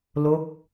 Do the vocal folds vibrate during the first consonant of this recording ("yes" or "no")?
yes